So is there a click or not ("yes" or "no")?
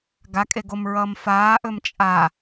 no